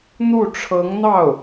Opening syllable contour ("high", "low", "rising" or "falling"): falling